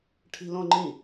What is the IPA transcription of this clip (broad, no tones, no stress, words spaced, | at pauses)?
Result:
ʈʰi̤lõŋ͡ǃĩ